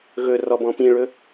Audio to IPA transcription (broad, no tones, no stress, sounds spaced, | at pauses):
ɣ ɵ r ɔ b ɔ̃ p ĩ ɭ ɵ